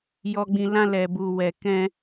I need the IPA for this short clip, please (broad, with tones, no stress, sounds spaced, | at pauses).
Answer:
j ɔ˨ ɡ͡b ĩ˨ l ã˧ l ɛ˨ b u˨ w ɛ˨ k ɛ̃˧